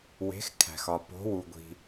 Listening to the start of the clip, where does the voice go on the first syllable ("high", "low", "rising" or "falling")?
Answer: rising